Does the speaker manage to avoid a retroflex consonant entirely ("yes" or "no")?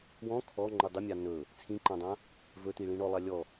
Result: no